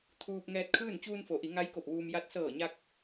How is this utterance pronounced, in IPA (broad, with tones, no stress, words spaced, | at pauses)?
t̪ʰuː˧p̚ ŋɛː˧t̚kʰɯː˥˨n t͡ɕuː˧nfo˩˧ʔi˩˧ ŋa˧˥j ko˧˩p̚ʋuː˧m ja˧˥t̚ sɤː˧˩ɲa˧k̚